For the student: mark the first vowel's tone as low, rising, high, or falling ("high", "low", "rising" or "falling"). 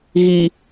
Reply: low